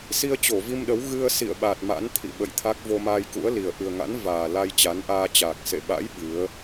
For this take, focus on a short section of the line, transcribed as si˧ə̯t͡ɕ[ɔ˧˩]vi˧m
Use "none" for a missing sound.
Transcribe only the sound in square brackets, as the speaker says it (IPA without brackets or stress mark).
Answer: o˧˩